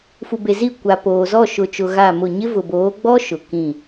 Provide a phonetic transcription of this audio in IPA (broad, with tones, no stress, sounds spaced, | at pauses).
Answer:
f u˨ b e˨ z i˦˨ kʷ a˨ p oː˨ z ɔ˦˨ ʃ ʊ˨ t͡ʃ ʊ˨ ɣ a˦˨ m ʊ˦˨ ɲ ɪ˦ v ʊ˨ b oː˨˦ ɡ͡b ɔ˦ ʃ ʊ˨ k ĩ˦˨